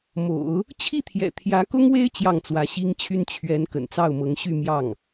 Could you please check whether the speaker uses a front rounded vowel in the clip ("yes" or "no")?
yes